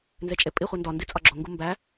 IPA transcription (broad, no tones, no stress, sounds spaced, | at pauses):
n z e t͡ʃʼ e pʼ i χʷ i n d ɒ n d i t͡sʼ ɒ ɡ͡ǁ o ŋ ɡ u m b æ